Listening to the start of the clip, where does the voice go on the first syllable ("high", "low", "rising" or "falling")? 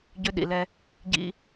high